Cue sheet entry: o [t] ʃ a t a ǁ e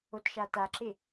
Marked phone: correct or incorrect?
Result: correct